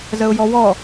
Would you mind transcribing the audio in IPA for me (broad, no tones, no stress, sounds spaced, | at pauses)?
z ə ʊ̯ j ɔ w ɔ